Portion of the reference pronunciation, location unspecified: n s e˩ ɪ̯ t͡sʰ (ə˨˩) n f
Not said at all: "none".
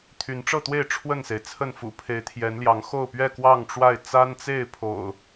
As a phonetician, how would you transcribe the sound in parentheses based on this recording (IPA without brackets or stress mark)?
ə˥˨